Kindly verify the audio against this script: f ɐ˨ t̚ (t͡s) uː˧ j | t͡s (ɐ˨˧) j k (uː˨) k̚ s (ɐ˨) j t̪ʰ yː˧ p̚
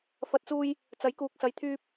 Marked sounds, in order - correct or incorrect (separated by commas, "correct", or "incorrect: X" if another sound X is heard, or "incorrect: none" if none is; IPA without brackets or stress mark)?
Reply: correct, incorrect: ɐ˨˥, correct, incorrect: ɐ˨˥